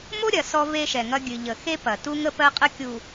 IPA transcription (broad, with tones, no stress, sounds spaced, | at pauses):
m o˦ ɾʲ ɐ˨ s ɔ˦ v e˦ ʃ ɛ˨ ŋ ɐ˦ ɡʲ ɨ˨ ʎ ə˨ x e˦ p ɐ˨ t u˦ ŋ ə˦ p ɜ˦ qʼ ə˦ kʲ u˨